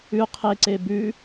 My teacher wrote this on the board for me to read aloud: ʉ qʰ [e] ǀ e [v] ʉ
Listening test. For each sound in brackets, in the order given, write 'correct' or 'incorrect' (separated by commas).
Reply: correct, incorrect